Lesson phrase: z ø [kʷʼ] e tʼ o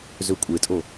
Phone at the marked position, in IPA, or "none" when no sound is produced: kʷʼ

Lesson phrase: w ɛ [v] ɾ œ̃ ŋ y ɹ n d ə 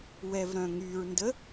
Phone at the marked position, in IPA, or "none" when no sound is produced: v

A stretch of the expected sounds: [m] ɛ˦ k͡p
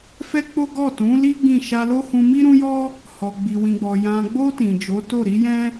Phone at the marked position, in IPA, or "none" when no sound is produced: f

